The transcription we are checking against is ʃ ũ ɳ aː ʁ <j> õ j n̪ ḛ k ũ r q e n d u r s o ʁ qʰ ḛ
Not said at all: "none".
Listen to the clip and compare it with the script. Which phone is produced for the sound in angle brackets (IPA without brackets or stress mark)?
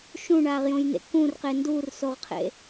j